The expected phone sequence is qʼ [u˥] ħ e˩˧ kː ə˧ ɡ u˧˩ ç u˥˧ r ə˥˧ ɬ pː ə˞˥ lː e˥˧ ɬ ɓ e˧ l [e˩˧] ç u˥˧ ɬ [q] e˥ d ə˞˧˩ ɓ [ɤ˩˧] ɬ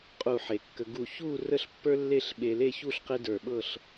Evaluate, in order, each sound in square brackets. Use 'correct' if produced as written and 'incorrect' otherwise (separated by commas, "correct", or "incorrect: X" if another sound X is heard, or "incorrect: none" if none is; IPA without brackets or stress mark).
incorrect: u˧˩, incorrect: e˥˧, correct, incorrect: ɤ˥˧